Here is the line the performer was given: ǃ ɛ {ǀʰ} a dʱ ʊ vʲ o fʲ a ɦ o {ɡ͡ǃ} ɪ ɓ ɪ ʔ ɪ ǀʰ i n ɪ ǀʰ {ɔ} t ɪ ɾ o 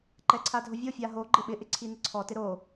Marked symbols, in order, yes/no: yes, yes, yes

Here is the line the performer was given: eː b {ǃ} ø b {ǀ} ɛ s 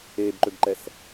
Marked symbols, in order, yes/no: yes, no

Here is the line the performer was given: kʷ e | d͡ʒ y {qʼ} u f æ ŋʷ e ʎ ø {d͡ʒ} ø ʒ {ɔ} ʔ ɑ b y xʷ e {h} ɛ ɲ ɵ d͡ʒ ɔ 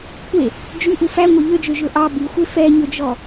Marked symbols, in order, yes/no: no, yes, no, no

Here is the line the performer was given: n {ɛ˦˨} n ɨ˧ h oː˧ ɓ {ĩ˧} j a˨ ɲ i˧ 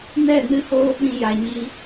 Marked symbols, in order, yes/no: yes, yes

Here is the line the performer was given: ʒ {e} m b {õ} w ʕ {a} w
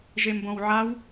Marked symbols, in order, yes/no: yes, yes, yes

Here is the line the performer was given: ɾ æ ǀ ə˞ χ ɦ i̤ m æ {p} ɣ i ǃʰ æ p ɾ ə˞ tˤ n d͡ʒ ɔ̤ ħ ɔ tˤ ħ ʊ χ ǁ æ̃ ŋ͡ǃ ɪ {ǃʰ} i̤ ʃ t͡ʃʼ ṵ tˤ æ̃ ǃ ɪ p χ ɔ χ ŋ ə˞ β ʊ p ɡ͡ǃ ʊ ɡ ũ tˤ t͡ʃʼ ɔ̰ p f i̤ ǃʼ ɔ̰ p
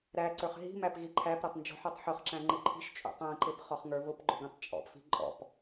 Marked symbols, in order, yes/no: yes, yes

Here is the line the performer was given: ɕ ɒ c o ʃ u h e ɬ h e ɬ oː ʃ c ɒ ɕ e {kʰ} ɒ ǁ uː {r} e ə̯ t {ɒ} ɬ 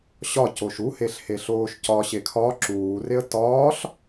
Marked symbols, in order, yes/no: yes, yes, no

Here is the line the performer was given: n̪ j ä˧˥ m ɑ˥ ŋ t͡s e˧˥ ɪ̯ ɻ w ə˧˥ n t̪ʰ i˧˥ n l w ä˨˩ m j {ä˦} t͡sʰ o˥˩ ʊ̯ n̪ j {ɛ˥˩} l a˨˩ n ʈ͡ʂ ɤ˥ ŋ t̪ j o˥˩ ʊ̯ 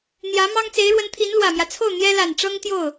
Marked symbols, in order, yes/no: yes, no

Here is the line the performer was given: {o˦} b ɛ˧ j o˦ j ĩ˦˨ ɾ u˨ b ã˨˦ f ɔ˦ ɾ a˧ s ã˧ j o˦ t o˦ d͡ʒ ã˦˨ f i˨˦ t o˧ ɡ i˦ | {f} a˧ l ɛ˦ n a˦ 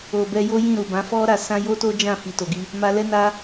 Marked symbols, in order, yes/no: no, no

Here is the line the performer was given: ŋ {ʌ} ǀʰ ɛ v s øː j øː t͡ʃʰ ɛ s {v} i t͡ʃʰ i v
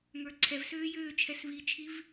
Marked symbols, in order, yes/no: no, yes

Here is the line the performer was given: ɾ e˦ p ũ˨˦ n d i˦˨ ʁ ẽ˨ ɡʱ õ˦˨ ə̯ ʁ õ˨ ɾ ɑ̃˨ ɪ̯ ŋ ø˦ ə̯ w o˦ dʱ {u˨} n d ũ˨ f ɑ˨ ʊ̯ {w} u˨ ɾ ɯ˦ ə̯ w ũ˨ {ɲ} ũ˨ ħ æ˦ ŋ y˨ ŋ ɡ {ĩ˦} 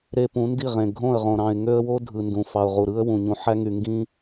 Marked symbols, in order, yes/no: no, no, yes, yes

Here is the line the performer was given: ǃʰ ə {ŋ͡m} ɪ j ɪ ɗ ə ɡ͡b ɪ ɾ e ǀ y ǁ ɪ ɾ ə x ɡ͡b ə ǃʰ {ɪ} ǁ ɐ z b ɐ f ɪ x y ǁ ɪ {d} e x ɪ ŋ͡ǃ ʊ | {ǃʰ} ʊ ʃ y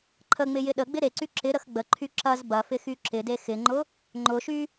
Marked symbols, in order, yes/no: yes, no, yes, no

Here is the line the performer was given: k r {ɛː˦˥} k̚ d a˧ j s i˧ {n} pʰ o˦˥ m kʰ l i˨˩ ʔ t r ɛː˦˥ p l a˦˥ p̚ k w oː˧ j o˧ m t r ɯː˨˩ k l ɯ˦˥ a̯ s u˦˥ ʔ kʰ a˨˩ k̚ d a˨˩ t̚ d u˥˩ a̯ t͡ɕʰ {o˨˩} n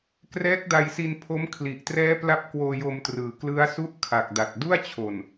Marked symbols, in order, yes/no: yes, yes, yes

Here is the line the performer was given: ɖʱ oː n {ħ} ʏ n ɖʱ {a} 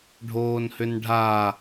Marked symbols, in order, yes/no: no, yes

